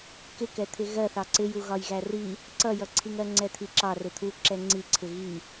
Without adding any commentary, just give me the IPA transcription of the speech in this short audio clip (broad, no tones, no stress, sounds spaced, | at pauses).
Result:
k ɪ k ɛ t̪ʰ ɪ ɣ ɜ θ ɑ ǀ ɪ j u ɣ ɒ j ɣ æ r i | ǀ ʌ j ʌ ǀʰ i ŋ ɜ ŋ͡ǀ ɛ t̪ʰ i ǁ ɑ r ɪ t̪ʰ u ǁ ɛ ŋ͡ǀ i ǀʰ ɪ ɣ i